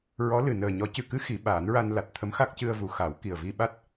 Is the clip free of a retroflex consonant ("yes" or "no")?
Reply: yes